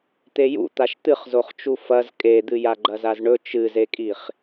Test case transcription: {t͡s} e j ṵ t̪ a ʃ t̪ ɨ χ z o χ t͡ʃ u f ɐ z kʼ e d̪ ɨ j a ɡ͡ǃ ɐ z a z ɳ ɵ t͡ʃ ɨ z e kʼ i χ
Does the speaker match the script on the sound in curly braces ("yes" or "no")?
no